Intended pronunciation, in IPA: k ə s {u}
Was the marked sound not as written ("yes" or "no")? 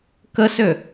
yes